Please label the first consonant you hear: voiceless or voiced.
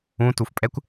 voiceless